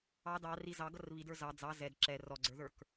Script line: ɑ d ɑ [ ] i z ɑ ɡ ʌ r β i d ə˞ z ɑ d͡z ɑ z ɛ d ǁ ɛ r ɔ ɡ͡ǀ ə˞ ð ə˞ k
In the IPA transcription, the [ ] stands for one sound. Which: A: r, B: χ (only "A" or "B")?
A